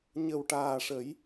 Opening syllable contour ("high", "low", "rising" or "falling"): low